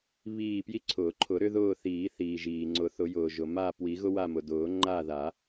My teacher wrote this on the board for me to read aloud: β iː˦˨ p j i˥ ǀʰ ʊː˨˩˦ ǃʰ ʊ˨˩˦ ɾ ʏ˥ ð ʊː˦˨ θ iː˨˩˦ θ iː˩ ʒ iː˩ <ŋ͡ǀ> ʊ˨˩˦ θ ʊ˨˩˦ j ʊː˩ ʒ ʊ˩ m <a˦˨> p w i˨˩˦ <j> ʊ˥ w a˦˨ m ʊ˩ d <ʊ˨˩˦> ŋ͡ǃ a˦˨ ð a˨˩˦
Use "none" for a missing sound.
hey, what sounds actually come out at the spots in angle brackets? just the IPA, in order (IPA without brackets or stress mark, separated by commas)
ŋ͡ǀ, a˦˨, ɣ, ʊː˨˩˦